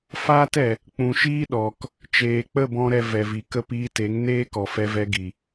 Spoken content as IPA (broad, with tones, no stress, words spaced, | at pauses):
faː˦tɛ˨ | k͡pũ˨ʃiː˦ɗɔ˨k | t͡ʃeː˨k͡pə˦˨bɔ̃˧ ɾɛ˧vɛ˨vi˨kə˦ piː˧te˨˦ŋneː˦ kɔ˨fɛ˧vɛ˧ ɡi˨